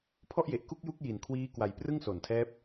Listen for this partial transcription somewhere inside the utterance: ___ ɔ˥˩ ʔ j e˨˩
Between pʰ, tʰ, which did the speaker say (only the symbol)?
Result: pʰ